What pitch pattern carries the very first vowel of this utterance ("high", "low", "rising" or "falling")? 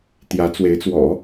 rising